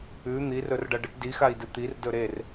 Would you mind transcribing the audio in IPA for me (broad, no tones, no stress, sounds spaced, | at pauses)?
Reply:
ʉ n̪ i r ɵ r ɖ ɐ ɖ ɨ ʈ d i x a i̯ d ɨ t̪ i r d ɵ ɾ e r